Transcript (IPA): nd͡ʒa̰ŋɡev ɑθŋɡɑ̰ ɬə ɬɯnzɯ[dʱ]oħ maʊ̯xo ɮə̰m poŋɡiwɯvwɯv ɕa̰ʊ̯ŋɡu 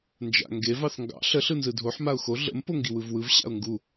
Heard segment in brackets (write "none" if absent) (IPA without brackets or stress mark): dʱ